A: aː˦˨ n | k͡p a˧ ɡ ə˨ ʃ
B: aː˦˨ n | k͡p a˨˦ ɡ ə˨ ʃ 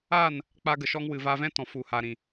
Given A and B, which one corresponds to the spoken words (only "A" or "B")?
A